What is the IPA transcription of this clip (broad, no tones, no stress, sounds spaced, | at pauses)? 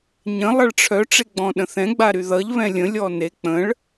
ɲ ə̃ lˠ ʌ ɭ ʈ͡ʂʰ œ ʈ͡ʂ e ɡ͡b ɔ̃ ɗ ə̃ θ ɛ̃ ɡ͡b a ɾ y ð ʌ ʎ β ɛ̃ lʲ ə̃ lʲ ɔ n e k͡p ə̃ ɭ